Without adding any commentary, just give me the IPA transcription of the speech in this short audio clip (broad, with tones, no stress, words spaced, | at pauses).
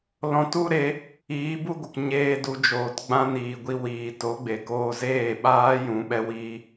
lɔ̃˧tu˦ɾe˨˦ | iː˨˦bu˦ɡʷə˨k ɲeː˧ du˧d͡ʒoː˨tɡ͡bã˦ niː˨ɡʷi˧ wiː˨to˨˦ɡ͡be˨ koː˧zeː˦˨ɓaː˦ jũ˨˦ɓɛ˦wiː˦